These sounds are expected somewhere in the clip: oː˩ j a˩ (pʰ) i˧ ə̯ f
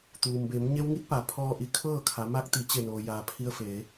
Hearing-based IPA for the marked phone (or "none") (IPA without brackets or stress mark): pʰ